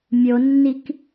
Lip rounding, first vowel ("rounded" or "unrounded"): rounded